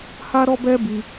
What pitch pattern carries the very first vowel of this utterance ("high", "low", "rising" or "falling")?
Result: high